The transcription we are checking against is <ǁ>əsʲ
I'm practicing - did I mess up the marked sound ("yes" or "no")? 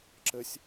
no